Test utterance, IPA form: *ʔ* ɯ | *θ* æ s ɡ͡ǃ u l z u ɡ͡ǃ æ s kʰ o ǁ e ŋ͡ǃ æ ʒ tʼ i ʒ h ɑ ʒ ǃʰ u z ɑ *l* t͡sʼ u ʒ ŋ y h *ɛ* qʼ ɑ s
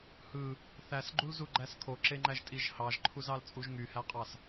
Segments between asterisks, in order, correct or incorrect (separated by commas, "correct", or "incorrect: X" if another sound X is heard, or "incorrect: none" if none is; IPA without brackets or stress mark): incorrect: h, correct, correct, incorrect: æ